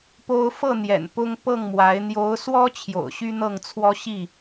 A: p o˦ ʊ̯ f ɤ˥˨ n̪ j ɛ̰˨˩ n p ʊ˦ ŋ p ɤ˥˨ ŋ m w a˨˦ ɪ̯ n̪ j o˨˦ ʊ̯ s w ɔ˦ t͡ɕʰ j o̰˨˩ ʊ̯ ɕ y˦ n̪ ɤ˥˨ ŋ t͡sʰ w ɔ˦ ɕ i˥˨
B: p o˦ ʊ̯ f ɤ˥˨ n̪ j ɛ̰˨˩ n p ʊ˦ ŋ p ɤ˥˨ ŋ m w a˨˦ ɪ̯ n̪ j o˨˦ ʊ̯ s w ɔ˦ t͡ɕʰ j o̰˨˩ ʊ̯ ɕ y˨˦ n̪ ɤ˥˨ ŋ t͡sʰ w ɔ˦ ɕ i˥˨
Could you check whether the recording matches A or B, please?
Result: A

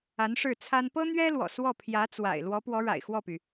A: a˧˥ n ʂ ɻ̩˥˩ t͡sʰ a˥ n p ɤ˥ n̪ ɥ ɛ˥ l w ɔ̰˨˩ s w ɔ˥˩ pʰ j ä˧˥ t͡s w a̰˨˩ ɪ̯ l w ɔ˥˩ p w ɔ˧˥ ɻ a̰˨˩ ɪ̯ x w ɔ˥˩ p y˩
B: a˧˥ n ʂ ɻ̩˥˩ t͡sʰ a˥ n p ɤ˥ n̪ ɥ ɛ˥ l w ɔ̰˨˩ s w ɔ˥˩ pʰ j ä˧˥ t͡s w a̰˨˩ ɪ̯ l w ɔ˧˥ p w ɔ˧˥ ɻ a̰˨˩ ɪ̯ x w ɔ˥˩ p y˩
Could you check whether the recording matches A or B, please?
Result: B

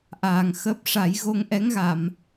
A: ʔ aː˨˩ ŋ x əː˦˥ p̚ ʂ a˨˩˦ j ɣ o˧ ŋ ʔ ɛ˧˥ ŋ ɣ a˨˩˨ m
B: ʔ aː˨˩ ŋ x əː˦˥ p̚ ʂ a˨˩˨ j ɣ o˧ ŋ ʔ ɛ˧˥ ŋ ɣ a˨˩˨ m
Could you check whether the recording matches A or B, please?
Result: A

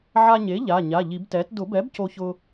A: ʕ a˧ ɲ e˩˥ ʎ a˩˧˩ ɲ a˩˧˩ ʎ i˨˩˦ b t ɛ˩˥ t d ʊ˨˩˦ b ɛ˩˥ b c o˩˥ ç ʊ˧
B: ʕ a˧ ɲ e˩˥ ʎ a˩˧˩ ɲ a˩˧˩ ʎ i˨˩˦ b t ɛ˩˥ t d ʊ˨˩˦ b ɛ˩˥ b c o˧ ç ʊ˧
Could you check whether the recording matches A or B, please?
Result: B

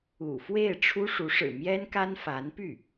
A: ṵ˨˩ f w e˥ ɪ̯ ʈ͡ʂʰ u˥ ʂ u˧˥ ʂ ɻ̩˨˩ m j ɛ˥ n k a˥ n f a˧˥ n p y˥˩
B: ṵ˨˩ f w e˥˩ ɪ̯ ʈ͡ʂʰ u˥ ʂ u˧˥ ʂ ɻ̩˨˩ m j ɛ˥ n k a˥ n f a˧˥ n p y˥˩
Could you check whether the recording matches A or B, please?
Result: B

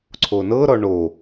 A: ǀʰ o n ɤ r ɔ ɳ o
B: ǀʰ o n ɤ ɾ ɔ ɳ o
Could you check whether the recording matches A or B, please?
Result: B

